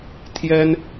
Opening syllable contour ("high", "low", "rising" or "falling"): high